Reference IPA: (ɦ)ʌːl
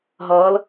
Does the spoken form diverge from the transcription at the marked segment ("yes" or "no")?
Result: no